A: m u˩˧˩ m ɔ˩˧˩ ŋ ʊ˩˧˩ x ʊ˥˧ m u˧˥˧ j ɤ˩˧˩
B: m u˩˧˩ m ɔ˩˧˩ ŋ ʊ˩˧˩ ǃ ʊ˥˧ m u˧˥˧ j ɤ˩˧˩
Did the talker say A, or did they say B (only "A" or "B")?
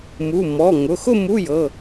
A